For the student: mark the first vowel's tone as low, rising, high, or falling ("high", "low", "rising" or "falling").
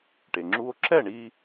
low